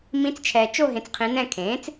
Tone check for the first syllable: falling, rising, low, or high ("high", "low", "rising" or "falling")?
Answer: rising